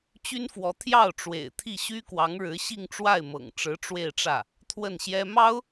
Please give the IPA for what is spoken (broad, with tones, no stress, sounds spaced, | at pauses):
t͡ɕ y˥ n f w ɔ˧˥ t̪ʰ j ɑ˥˩ ʊ̯ ʈ͡ʂ w ḛ˨˩ ɪ̯ t̪ʰ i˥˩ ɕ y˥ k w ɑ˧˥ ŋ ɻ ɻ̩˧˥ ɕ i˥˧ ŋ ʈ͡ʂ w a˥˩ ɪ̯ m ɤ̰˨˩ ŋ ʈ͡ʂ ɻ̩˧˥ ʈ͡ʂ w e˥˧ ɪ̯ ʈ͡ʂ ä˥˩ | t̪ʰ w ə˥˩ n ɕ j ɛ˥ m ɑ˥ ʊ̯